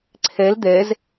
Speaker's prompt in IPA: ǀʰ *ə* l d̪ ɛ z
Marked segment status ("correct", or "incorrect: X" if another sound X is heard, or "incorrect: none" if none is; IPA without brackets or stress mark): incorrect: ɛ